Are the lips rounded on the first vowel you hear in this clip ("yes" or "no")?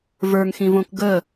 no